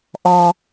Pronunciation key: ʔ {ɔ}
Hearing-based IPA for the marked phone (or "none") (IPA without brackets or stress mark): ɔ